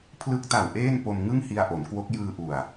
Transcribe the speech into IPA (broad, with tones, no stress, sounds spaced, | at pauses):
pʰ l ɯ˦˥ k̚ t a˨˩ w ʔ eː˥˩ n p o˧ m ŋ ɯ˥˩ ŋ h i˧ a̯ ʔ o˩˦ n k w o˦˥ k̚ j ɯː˧ ʔ u˨˩ a̯